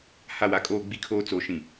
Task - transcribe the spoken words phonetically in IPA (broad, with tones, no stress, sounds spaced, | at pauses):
h a˦˨ w a˦ kʼ oː˦ ɡ͡b i˦ kʰ oː˦ t͡s o˨˦ ʃ ĩ˨